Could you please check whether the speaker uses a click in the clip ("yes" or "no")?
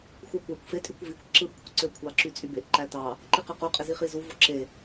yes